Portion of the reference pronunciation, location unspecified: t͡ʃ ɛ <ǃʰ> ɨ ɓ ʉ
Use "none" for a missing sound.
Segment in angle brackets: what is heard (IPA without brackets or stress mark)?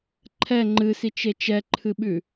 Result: ǃʰ